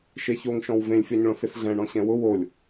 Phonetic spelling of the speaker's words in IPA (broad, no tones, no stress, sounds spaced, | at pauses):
ʃ e ç o ŋ ʃ ɔ̃ w v ẽ lʲ fʲ ɔ ɲ ɭ õ s ɪ s ɮ ɛ̃ ɳ ɔ̃ ɕ ɛ̃ w ʊ w o lʲ